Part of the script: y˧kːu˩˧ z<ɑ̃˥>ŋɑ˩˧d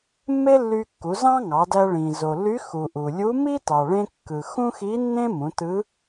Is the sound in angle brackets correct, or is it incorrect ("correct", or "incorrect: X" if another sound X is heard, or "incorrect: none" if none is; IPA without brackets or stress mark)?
correct